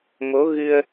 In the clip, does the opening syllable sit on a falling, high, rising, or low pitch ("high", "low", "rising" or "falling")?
rising